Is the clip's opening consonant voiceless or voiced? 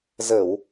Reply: voiced